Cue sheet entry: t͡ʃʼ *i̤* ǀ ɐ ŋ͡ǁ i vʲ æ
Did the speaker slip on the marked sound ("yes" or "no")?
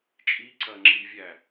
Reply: yes